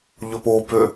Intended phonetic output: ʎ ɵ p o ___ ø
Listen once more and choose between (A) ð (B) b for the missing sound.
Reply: B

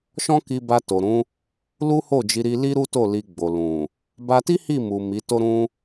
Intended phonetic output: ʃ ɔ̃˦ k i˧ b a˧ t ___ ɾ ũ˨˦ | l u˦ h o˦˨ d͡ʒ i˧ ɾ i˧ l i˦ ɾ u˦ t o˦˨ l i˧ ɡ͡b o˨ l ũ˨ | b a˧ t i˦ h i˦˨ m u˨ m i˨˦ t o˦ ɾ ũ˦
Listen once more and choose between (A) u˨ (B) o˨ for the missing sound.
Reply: B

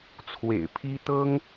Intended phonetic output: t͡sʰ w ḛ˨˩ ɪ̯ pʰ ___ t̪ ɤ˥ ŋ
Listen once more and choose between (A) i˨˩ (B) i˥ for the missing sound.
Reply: B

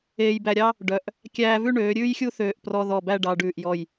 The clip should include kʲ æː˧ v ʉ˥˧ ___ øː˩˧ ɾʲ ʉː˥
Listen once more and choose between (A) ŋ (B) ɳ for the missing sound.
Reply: B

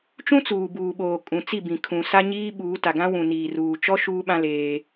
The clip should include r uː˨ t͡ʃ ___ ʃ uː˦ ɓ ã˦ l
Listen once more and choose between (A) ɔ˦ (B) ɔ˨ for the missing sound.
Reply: A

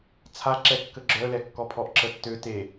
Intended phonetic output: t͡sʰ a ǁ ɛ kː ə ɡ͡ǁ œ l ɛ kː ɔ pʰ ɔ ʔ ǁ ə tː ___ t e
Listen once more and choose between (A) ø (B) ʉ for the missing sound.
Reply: A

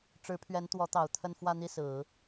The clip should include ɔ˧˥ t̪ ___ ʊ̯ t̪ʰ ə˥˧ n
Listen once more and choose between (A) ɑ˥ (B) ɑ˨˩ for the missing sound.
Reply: B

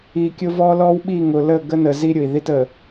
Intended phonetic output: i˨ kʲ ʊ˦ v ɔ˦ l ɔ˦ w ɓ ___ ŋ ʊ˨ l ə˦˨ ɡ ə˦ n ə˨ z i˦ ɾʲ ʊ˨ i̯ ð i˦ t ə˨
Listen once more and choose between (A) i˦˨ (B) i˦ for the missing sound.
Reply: A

